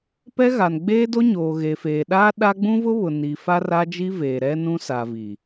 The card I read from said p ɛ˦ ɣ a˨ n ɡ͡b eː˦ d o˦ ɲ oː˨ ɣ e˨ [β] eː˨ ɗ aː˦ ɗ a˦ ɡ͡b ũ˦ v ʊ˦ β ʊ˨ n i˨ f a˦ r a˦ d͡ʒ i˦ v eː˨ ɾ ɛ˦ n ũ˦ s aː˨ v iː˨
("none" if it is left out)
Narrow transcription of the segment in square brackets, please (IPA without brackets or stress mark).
f